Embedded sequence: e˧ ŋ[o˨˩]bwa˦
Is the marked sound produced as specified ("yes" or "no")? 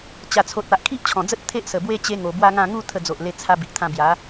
yes